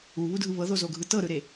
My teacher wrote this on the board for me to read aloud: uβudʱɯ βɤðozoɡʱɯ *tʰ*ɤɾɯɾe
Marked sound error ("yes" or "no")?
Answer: yes